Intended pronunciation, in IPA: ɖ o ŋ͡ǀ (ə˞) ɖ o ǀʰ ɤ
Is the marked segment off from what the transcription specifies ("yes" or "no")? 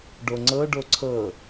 yes